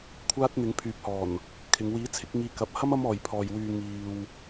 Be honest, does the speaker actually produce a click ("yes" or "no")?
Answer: no